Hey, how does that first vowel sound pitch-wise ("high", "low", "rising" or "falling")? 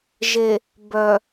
low